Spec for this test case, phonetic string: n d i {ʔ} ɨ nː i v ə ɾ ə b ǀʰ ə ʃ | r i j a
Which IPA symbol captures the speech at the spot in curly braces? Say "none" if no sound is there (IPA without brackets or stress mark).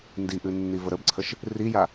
ʔ